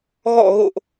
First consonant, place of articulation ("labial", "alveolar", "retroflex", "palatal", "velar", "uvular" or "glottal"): velar